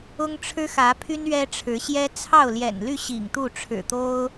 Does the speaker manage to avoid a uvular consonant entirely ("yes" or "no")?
yes